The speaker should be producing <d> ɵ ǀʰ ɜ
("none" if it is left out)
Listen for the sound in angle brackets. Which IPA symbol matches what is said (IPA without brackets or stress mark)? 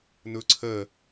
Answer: n